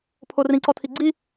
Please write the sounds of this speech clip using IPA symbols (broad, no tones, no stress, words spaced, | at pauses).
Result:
pʰorĩǀɔtʰi ɡ͡ǀi